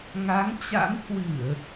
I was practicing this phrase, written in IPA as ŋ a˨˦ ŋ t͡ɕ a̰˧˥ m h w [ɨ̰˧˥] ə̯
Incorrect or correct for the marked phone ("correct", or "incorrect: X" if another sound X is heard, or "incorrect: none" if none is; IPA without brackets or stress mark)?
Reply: incorrect: ɨ˧˩˨